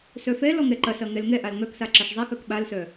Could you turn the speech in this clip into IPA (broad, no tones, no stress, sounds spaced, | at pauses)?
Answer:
s œ f ɛ l ɔ ŋ ɛ ǃ ɐ s ɐ ŋ ɛ l ŋ ɛ ʔ a l ŋ œ k s a ǁ ɐ ʃ zˤ ɛ x œ k ɓ a l s œ